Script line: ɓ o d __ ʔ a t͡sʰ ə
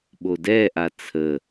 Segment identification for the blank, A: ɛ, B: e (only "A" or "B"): A